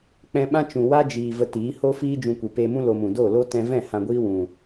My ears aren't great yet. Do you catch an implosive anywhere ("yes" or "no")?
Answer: yes